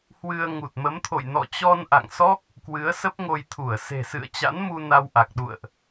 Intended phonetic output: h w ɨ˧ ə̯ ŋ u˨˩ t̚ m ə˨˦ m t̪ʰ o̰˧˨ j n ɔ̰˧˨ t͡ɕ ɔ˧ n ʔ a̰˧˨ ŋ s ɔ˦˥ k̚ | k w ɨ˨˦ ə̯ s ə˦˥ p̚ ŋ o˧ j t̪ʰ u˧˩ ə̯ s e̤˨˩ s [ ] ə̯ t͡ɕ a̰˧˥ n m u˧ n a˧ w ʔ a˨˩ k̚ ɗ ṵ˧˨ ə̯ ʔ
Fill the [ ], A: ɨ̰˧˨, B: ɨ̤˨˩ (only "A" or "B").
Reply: A